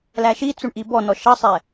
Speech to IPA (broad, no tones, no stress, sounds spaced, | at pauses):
l æ ʃ i t͡s u ɳ ʔ i b ɔ n ɔ ʃ ʌ sˤ ɛ